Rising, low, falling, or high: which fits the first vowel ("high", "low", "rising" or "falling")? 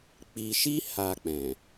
low